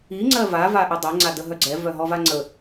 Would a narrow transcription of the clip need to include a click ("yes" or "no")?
yes